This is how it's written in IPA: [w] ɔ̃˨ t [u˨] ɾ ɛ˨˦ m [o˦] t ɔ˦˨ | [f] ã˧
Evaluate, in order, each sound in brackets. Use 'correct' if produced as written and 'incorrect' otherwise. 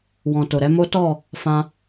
correct, incorrect, correct, correct

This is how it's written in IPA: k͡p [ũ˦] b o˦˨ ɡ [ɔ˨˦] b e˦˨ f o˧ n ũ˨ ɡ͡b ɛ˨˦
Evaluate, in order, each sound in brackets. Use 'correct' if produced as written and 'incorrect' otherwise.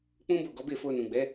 correct, correct

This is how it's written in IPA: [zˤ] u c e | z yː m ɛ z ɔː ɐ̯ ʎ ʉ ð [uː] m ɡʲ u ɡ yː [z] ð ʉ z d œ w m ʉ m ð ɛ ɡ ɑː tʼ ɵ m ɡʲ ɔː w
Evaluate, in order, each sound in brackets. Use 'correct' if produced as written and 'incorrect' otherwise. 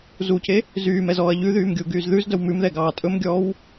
incorrect, incorrect, correct

